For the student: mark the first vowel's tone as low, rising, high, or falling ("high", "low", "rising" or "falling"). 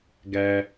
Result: low